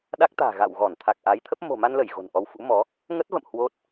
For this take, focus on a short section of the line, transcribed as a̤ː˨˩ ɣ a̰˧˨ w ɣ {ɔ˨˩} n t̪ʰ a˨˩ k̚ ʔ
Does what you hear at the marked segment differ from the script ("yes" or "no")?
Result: yes